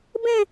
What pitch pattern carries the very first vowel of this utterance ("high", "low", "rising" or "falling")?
falling